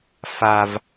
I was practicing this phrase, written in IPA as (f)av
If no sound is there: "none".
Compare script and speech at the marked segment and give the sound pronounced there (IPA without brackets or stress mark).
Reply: f